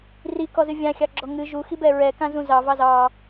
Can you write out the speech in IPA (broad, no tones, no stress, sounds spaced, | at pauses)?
r i k ɔ z ɨ vʲ ã xʲ ɑ ɡ͡ǁ ɔ ŋ ɨ ʒ u x i b ɛ ɹ ɛ k ã z ũ z ɑ v ɑ z ɑ